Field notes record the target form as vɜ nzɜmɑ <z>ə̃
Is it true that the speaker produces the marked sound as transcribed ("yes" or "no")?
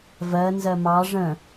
no